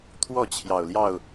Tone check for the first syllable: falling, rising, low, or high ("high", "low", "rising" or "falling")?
falling